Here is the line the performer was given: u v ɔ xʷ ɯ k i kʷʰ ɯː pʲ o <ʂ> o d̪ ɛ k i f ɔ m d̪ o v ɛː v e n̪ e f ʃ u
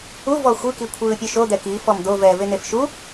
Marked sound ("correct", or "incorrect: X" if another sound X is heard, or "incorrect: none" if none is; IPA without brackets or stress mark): incorrect: ʃ